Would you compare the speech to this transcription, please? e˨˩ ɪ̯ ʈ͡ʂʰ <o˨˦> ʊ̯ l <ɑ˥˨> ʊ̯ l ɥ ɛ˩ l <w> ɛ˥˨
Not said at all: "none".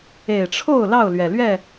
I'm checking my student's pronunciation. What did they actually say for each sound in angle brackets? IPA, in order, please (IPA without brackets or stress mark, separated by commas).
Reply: o˥˨, ɑ˥˨, ɥ